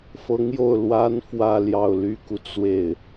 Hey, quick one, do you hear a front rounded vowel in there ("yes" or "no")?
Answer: yes